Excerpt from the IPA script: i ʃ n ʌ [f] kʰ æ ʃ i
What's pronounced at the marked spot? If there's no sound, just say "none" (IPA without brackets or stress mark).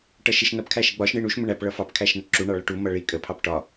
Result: p